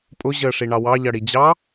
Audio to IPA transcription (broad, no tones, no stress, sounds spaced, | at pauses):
pʼ ʊ ʑ əː ʂ i ɳ ɑ w ɑ ʎ ʌ ɽ i d͡ʑ ɑ